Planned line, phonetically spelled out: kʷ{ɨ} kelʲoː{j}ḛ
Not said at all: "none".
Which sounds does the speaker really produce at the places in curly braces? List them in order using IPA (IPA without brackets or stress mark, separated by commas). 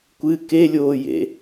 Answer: ɨ, j